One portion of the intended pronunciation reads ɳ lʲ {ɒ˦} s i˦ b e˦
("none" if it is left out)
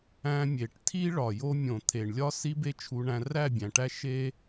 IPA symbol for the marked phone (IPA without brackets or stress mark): ɒ˦